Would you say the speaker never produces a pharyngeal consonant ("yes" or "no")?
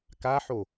no